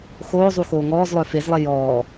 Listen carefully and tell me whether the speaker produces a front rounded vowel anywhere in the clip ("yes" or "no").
yes